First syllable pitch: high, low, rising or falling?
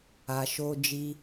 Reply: low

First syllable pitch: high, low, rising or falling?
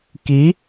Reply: rising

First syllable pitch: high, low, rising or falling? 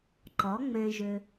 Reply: rising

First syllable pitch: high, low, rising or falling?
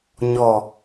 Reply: low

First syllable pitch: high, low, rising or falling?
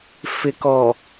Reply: low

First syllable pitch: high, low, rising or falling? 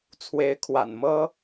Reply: rising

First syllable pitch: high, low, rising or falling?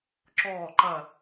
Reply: falling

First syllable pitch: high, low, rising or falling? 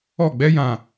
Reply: falling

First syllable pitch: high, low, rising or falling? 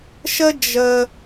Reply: high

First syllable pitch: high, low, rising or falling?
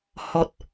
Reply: high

